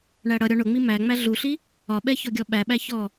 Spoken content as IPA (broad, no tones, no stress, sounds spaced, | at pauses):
ɳ æ ɽ ʌ ɾʲ ɔ ɳ ʊ ŋ͡m i m æ ŋ͡m æ ɮ u ɬ i | ɒ ɓ ɛ ç ɔ ɡʲ ɔ ɓ æ ɓ æ ç ɔ